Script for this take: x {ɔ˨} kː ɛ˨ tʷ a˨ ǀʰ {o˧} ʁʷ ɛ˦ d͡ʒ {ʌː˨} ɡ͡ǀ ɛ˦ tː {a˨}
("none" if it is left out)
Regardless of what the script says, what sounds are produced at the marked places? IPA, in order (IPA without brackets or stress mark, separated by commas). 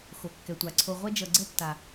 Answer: o˨, o˧, ʌ˨, a˨